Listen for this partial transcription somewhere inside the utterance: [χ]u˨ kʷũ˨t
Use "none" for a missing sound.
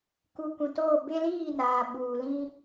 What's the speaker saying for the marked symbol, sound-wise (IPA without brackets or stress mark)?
k